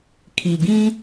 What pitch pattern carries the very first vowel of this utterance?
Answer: low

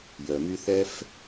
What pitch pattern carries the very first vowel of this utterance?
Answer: low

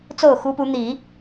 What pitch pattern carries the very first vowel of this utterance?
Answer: falling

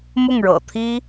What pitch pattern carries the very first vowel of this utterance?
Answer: falling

